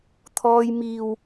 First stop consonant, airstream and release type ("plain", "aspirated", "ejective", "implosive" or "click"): aspirated